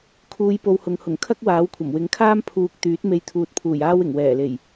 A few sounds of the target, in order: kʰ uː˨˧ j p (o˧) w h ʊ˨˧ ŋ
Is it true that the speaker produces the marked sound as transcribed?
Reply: yes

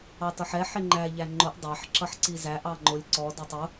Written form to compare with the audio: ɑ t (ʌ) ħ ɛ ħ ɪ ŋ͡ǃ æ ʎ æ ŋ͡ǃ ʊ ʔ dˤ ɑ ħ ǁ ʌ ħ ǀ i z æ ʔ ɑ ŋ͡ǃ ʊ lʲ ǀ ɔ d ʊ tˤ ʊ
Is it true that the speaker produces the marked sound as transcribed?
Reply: yes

